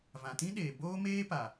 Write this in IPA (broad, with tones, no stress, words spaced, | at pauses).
vã˨tĩ˦ ɗeː˨ boː˦meː˦pa˨